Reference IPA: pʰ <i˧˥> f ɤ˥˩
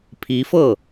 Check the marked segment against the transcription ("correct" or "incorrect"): correct